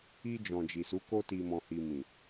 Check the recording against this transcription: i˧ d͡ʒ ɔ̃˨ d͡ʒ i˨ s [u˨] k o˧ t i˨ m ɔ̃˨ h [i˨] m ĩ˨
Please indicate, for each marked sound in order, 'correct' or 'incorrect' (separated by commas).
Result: incorrect, correct